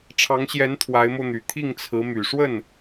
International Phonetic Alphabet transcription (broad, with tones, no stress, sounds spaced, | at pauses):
ʈ͡ʂʰ ɑ˧˥ ŋ ɕ j ɛ˧˥ n t̪ʰ w a˧˥ ɪ̯ m o˧ ʊ̯ n̪ y˨˩ t̪ʰ i˥˩ ŋ t͡sʰ ɹ̩˧˥ m y˨˩ ʂ w ə˥˩ n